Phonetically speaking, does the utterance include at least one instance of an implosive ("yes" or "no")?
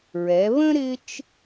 no